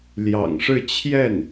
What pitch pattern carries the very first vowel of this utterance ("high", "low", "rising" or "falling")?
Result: low